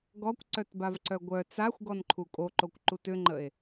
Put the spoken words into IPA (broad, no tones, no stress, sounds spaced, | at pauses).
ɡ ɔ kʷ ǀ œ t b a v ǀ œ ɡʷ œ t͡s a xʷ ɡ ɔ n ǃʰ u kʼ o ǃ o kʷ ǃ u t ʏ ŋ͡ǃ ə e̯